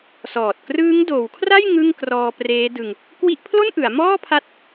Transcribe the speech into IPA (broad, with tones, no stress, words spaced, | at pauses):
sɔː˨˩t̚ krɯː˦˥ŋdoː˩˦wkʰra˥˩j ŋɯ˥˩ŋkrɔː˧preː˦˥dɯ˧ŋ | kwi˦˥ʔpʰlo˥˩nʔɯ˩˦a̯ mɔː˥˩pʰa˦˥t̚